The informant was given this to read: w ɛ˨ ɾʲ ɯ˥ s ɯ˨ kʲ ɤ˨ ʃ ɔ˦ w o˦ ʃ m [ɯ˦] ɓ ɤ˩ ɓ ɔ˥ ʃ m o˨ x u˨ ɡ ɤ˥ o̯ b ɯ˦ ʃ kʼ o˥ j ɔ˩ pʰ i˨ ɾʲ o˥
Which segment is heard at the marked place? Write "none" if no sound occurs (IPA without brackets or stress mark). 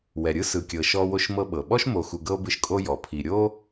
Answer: ɤ˦